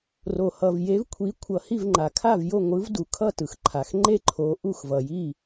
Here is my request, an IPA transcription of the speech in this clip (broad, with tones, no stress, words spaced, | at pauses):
ro˩hʌ˩v je˩˥vkʷʰi˩˥ kʷʰʌ˩hi˥˩vŋ͡ǃa˩ kʰa˥˩vjo˥˩ŋʷɯ˩˥v du˩kʰʌ˥˩ tɯ˩xǃʰa˩xŋ͡ǃe˥˩ ǃʰo˩˥ ʔu˥˩xvʌ˩ji˥˩